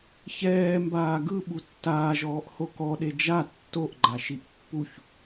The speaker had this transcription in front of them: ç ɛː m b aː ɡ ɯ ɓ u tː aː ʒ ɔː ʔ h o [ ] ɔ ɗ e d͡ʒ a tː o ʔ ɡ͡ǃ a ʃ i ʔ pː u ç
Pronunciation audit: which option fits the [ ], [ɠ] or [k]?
k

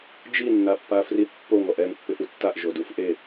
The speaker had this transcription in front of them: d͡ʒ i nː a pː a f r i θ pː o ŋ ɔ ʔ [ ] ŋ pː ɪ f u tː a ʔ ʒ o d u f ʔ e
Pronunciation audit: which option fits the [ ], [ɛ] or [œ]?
ɛ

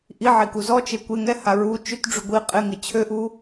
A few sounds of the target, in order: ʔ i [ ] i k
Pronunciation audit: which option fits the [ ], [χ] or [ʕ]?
ʕ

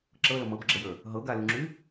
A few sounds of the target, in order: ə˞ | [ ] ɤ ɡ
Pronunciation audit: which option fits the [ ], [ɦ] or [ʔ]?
ɦ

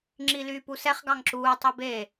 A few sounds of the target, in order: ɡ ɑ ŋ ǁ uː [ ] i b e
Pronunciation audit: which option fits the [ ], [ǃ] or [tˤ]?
tˤ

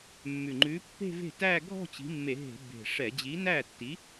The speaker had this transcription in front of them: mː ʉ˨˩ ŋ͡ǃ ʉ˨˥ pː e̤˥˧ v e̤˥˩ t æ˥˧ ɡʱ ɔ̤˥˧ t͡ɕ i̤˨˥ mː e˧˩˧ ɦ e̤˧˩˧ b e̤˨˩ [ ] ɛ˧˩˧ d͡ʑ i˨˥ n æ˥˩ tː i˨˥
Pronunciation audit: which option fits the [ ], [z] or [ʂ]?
ʂ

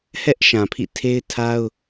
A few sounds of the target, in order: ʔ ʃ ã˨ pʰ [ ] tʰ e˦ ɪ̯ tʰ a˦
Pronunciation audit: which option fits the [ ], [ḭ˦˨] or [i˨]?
ḭ˦˨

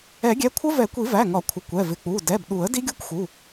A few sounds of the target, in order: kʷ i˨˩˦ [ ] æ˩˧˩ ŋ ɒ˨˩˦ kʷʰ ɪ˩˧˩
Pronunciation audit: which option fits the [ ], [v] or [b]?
v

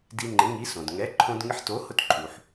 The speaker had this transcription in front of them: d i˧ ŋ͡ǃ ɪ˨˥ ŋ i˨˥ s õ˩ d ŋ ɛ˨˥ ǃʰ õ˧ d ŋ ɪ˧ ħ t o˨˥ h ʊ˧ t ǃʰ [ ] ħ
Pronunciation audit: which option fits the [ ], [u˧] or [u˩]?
u˩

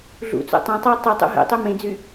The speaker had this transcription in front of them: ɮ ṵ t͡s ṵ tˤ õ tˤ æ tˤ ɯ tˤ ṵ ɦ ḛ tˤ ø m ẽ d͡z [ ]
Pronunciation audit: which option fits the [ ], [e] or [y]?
y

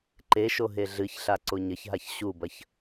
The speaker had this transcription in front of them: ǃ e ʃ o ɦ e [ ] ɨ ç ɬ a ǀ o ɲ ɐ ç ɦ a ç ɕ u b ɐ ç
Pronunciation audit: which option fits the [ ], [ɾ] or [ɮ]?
ɮ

